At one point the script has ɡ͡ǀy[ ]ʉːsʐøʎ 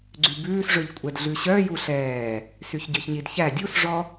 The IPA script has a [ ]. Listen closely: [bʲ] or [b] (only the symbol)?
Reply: b